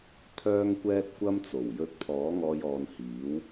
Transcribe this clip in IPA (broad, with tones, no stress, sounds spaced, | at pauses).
t̪ʰ œː˥ ŋ kʷ ɛː˥ t̚ kʷ ɐ˥ m t͡s o˨˩ w j ɵ˧ t̚ pʰ ɔː˨˥ ŋ ɔː˧ j ɔː˨ n h iː˨˥ w